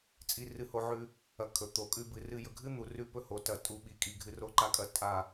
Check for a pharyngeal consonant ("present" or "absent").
present